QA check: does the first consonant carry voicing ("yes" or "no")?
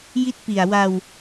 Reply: yes